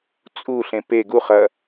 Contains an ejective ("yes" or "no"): yes